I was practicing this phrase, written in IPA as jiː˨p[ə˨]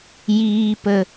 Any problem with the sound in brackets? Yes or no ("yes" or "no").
no